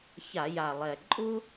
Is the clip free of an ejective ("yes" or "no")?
no